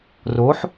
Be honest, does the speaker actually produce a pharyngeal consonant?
yes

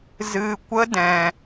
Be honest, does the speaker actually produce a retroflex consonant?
no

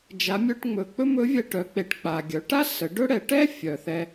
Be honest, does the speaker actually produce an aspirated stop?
no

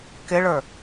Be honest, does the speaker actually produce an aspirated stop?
no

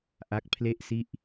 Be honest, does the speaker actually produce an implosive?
no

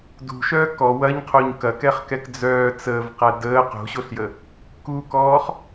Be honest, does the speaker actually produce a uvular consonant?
yes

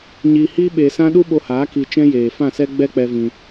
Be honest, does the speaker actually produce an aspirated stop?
no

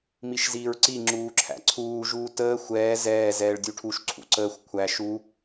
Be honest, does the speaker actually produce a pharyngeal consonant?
no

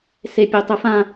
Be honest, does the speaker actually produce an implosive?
no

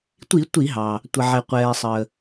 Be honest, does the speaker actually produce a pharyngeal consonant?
yes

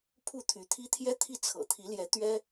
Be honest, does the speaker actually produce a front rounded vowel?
yes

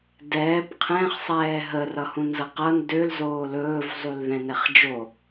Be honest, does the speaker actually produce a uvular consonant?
yes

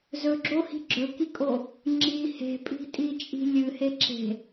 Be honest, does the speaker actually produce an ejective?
yes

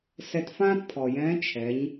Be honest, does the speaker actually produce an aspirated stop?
yes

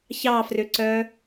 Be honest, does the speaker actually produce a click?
yes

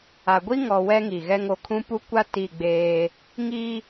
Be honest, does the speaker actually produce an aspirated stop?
yes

